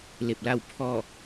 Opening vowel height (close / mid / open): mid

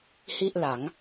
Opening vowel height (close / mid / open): close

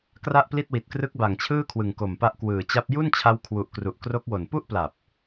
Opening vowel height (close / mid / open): open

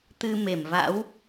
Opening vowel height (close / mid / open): close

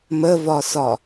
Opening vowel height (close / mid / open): mid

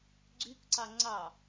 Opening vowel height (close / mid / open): close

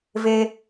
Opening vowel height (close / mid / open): mid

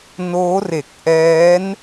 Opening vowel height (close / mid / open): mid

